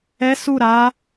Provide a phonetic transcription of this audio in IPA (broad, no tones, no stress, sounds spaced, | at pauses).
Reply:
ɛ s u ɾ a